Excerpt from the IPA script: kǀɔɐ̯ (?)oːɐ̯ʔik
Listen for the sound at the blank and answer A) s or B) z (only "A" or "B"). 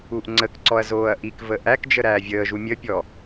B